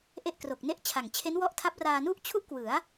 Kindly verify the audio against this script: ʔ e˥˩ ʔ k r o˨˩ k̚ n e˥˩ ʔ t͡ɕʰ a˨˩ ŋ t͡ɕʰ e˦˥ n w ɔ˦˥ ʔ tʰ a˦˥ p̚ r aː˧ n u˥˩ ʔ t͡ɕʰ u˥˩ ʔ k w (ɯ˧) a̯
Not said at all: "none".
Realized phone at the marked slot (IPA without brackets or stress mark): ɯ˩˦